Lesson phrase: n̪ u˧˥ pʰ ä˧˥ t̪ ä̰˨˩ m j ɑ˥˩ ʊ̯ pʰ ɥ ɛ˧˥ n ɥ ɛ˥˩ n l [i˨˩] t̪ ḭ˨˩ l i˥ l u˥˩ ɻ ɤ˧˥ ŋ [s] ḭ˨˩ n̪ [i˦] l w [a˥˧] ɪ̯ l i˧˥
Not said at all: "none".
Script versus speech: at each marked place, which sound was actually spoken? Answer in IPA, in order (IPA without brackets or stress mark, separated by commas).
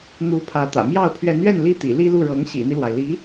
i˥, ɕ, i˦, a˩